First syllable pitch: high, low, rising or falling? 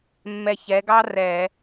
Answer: low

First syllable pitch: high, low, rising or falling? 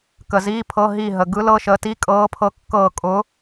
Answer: low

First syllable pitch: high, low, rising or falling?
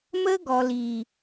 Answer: high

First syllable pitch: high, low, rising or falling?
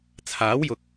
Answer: rising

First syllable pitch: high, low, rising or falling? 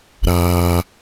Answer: high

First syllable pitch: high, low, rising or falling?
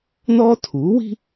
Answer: high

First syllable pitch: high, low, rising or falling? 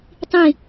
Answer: falling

